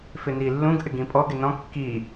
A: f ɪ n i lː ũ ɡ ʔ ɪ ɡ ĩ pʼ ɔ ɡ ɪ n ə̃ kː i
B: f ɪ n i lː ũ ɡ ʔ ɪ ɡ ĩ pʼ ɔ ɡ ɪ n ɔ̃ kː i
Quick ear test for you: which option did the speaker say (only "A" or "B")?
B